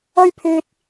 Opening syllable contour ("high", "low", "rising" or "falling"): high